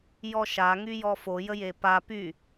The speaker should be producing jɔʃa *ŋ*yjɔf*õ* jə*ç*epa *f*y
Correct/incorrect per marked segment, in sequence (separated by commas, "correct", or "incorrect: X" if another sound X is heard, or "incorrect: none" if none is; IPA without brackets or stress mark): correct, incorrect: o, incorrect: j, incorrect: p